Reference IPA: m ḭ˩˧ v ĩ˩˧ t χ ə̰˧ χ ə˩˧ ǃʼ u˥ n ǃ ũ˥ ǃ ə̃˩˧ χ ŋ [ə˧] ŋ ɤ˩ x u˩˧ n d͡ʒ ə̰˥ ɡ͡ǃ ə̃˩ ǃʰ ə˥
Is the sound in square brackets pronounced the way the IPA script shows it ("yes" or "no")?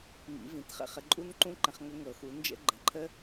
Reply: yes